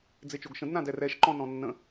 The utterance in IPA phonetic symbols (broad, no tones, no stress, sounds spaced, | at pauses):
d͡z e t͡ʃ o ɡ ʃ ə̃ d n ã d ɛ r ɛ ʃ ǃ ɔ̃ n ɔ̃ nː ə̃